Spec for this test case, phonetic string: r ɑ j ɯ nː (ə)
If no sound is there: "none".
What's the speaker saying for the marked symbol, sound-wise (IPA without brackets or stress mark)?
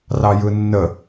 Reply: ə